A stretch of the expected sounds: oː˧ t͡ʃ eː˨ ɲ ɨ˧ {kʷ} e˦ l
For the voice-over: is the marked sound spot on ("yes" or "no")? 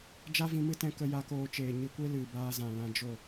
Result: yes